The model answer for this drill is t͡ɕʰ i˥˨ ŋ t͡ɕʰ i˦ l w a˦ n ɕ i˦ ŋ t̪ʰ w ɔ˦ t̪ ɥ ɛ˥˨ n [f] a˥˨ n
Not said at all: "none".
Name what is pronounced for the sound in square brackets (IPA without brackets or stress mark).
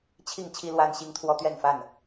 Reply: f